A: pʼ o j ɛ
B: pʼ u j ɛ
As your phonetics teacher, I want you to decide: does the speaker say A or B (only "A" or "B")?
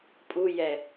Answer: B